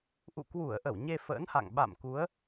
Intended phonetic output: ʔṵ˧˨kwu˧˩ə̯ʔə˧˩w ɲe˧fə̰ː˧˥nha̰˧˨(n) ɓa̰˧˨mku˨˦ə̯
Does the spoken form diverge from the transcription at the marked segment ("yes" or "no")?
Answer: yes